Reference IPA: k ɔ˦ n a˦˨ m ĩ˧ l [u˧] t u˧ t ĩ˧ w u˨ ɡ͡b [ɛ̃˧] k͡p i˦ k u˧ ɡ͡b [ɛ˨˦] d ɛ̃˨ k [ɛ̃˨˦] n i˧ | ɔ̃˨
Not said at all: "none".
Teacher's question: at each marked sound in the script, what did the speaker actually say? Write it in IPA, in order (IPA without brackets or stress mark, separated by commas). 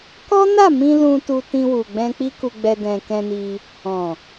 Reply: ũ˧, ɛ̃˧, ɛ˧, ɛ̃˧